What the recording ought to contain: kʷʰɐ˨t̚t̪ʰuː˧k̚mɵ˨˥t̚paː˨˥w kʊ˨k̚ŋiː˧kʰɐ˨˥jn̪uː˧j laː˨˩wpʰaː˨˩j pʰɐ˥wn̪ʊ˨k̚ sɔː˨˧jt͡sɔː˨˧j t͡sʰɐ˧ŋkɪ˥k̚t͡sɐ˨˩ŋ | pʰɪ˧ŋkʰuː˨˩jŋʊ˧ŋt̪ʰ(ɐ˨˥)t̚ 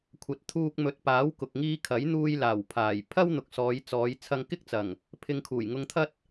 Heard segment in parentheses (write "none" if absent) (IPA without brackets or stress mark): ɐ˥